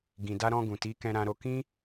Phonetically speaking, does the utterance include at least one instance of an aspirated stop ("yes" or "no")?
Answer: no